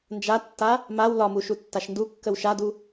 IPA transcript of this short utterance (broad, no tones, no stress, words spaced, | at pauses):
nd͡ʒatːa | maw lɒmu ʃutːaʃndukːəw ʃadu